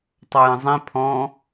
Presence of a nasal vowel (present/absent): present